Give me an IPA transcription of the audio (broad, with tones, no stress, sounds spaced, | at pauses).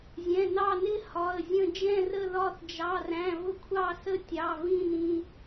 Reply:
zʲ ɛ̃˩˧˩ n ɑ˦˨ n ɪ˦˨ h ɒ˩˧˩ ə̯ zʲ ə̃˦˨ d͡ʒ ɛ̃˦˨ r ə˦˨ ð ɒ˦˨ θ d͡ʒ ɑ˩˧˩ r æ̃˩˧˩ v ʊ˦˨ kʷʰ ɑ˦˨ s ə˦˨ tʲ ɑ˩˧˩ v ĩ˦˨ n ĩ˩˧˩